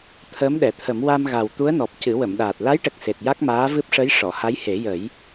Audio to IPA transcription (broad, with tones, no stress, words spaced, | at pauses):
t̪ʰəː˧˥mɗɛ˨˩˨t̪ʰə˨˩˦m wa˧mɣa˨˩w t̪u˧˥ə̯nɔ˨˩p̚ cɨ˨˩˦wə˨˩˨mɗaː˨˩t̚ la˧˥jʈə˨˩k̚ se˨˩t̚ja˦˥k̚maː˧˥ vɨ˦˥p̚ʂə˧˥j ʂɔ˨˩˨ha˧˥jhe˨˩˦jə˨˩˦j